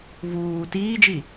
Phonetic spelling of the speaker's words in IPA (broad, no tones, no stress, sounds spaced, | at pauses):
v uː t iː d͡ʒ i